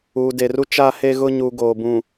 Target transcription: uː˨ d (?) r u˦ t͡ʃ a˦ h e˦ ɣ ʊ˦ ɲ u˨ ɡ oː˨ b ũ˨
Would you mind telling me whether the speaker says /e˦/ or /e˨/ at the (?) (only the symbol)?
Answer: e˨